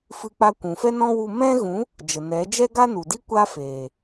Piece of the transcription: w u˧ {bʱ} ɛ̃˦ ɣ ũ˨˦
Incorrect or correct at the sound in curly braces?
incorrect: m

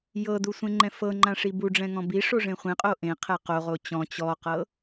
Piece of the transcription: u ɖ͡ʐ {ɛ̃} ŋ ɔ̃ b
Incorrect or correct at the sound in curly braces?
correct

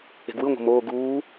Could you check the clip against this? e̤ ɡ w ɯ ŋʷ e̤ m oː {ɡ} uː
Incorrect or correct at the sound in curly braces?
correct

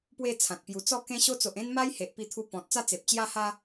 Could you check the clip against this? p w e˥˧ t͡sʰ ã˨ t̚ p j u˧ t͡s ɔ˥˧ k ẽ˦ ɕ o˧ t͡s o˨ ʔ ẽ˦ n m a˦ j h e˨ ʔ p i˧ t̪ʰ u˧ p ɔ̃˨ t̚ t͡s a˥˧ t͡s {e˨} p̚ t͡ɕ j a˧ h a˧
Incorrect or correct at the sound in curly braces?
correct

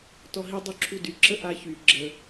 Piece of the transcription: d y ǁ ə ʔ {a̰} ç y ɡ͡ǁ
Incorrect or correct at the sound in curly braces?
incorrect: a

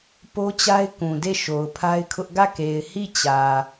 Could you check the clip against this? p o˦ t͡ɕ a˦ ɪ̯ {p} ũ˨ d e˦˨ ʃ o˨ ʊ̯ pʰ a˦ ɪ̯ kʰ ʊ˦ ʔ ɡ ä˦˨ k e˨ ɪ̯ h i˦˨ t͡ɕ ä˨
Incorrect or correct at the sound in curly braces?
incorrect: k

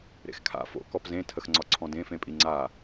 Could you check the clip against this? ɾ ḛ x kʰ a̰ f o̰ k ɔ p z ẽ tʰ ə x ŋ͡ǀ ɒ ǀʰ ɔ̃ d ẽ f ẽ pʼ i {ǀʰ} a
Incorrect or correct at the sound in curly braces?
incorrect: ŋ͡ǀ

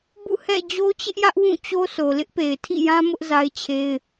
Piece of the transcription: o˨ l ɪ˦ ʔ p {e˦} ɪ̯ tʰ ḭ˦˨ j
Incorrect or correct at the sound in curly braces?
incorrect: e˨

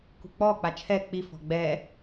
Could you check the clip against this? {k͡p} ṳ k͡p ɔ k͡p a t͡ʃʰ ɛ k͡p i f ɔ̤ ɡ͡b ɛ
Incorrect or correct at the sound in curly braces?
incorrect: k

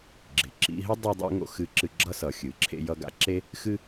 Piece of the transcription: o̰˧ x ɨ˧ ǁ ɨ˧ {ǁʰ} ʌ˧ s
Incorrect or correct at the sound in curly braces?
incorrect: ɡ͡ǁ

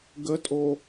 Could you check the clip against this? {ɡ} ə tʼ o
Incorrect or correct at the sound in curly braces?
correct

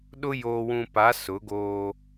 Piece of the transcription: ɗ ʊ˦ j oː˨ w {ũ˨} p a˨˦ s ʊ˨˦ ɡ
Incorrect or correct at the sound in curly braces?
correct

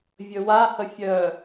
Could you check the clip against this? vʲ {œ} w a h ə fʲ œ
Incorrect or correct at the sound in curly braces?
incorrect: ɵ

